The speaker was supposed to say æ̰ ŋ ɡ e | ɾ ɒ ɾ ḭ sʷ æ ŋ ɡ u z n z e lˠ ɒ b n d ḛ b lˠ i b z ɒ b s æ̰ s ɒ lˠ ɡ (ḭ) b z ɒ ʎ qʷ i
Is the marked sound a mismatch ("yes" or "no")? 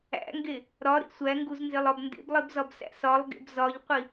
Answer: yes